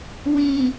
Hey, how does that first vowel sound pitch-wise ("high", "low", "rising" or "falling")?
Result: low